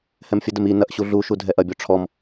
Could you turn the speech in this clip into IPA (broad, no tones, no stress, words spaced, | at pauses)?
hɛmfʲədəm i nɐʔɕu ɮuʃu dʱɛʔɐbʲɔ ʈ͡ʂʰɔm